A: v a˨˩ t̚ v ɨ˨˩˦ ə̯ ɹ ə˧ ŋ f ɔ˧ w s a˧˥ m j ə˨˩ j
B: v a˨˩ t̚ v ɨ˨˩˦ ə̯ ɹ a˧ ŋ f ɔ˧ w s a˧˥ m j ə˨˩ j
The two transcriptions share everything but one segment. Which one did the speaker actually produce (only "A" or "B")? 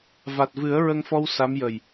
A